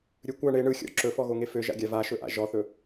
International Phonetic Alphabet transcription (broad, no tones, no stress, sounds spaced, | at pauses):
ɾʲ ɵ kʷ a ɳ e ɳ ɯ xʲ ɔ̰ ǁ ɵ f ɔ ɣ o ŋ e f ø ʒ a̰ ɡʲ a v a ʃ ɵ ʔ a̰ ʒ ɔ θ ɵ